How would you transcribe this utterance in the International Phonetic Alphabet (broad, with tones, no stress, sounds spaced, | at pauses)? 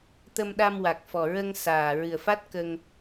t̪ ə˧ m ɗ a˧ m w a˨˩ k̚ f ɔ˨˩ ɹ ə˧ ŋ s aː˨˩ ɹ ɨ˨˩ ə̯ f a˦˥ t̚ k ə˧ ŋ